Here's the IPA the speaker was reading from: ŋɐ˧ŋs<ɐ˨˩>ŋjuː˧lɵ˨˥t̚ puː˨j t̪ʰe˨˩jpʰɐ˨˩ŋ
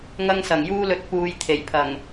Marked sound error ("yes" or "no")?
no